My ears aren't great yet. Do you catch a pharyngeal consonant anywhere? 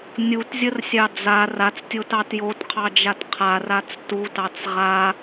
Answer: no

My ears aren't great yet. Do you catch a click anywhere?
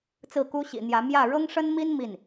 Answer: no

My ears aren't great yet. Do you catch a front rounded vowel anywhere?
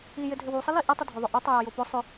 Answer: yes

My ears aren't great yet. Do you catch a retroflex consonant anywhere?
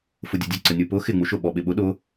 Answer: no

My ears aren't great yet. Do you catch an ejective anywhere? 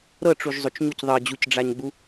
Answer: no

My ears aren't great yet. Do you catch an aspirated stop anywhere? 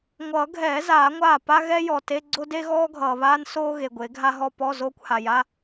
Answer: no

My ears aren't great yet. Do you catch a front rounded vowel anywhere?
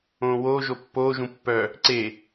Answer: yes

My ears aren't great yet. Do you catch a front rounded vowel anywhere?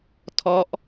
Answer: no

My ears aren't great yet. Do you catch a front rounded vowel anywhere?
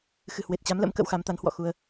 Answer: no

